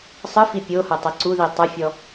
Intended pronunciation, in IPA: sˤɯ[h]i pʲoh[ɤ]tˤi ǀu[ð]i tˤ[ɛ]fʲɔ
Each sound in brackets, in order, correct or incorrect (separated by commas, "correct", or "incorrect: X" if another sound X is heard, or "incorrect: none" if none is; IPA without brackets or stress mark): incorrect: f, correct, correct, correct